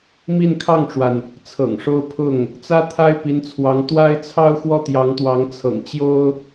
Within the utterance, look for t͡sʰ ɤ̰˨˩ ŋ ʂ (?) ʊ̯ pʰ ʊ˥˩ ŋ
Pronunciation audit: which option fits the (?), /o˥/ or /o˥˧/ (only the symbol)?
o˥